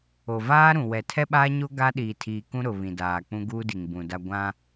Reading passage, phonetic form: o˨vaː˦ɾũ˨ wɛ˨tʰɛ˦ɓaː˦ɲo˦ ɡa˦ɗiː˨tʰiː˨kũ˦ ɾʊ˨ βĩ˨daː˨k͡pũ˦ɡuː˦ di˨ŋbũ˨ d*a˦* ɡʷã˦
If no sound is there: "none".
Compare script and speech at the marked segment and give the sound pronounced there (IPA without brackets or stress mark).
a˦